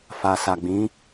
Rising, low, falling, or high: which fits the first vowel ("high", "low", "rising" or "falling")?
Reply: low